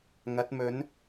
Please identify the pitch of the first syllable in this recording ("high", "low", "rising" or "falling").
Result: rising